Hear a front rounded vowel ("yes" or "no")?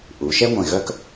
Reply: yes